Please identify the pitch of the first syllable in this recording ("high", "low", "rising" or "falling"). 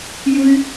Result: high